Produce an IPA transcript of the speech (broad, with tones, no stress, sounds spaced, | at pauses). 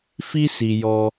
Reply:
f i˧ s i˨ j ɔ˧